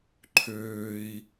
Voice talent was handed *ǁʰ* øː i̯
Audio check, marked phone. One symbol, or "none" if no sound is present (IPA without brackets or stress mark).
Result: ǃʰ